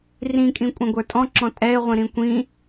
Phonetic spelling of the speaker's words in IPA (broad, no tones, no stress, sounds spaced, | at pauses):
r ĩ kʼ ĩ kʷʼ ɛ̃ ɡʷ ə˞ tʼ ɔ̃ ǁ ɔ̃ tʼ ɛ ɪ̯ ʁʷ ĩ ɾ ĩ kʷ ĩ